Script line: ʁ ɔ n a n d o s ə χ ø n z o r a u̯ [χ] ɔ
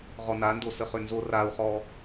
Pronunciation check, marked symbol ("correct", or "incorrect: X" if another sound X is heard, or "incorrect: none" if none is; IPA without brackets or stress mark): correct